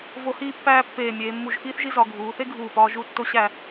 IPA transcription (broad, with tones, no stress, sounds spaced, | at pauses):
v o˧ h iː˥˧ pː æː˥˧ pː eː˧˩ mʲ eː˩˧ mː u˧˩ ʒ x iː˥ θ ʒ i˥ z ɒ˩˧ ɡʱ uː˩˧ θ e˥ ɡʱ uː˧˩ p ɒː˧ ʒ u˥˧ tː o˥ ɕ æ˥˧